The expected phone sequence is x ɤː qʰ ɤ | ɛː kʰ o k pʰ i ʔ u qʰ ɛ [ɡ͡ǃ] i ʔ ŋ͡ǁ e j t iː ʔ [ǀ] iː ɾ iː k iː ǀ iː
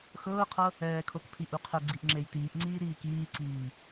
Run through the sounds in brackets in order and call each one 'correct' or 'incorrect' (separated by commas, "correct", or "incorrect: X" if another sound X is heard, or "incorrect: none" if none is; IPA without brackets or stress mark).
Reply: incorrect: ɡ͡ǀ, incorrect: ŋ͡ǀ